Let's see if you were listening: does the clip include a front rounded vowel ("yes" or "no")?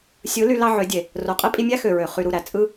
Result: yes